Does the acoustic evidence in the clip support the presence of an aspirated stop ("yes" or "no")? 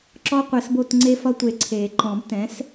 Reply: yes